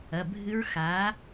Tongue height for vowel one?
low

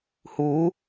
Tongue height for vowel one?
high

